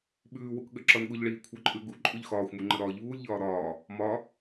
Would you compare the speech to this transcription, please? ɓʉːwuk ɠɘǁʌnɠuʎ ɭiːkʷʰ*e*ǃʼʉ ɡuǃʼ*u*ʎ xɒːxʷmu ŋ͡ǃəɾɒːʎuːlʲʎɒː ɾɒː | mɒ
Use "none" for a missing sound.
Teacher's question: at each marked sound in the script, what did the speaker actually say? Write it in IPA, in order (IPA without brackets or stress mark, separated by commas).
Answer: ɘ, ʉ